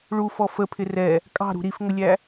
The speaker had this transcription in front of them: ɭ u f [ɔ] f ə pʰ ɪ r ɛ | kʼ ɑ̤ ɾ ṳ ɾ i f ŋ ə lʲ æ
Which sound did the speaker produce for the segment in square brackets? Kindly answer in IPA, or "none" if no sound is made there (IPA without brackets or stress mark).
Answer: ɔ